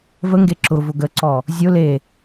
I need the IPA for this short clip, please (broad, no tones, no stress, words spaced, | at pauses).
vəŋɡe ǁʊvʊ ɡəǀɔ | zʲʊ le